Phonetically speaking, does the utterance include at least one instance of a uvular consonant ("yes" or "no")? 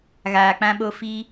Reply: no